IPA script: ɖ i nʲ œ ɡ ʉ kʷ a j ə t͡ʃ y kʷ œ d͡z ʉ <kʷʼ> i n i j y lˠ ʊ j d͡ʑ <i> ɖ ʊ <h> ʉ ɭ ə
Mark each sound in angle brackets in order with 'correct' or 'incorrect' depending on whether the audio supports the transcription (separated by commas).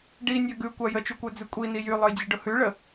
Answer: correct, correct, correct